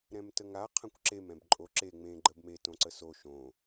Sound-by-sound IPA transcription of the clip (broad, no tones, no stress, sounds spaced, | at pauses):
ɾ ɛ̃ m t ə ŋ a qʰ ã kʷ ǁ e m ɛ̃ b ǃʼ o ǁ e ŋ͡m ẽ ɡ͡ǃ ə b m e t õ ǀ ə s o ʃ õ